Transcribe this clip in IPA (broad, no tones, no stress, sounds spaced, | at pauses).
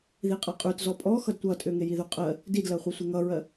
ð i qʼ a qʼ ʉ t z ɔ pʼ ɔ x ʌ d tʷ ʌ tʼ ʏ ŋ e j i ð ʉ qʼ ɜ | d i d l ɜ χʷ i sʷ e ŋ ʌ ɹ ɜ